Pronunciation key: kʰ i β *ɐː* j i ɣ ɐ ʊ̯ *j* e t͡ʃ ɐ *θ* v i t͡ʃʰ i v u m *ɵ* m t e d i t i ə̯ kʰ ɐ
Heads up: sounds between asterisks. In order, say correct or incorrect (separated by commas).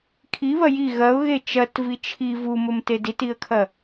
incorrect, incorrect, incorrect, correct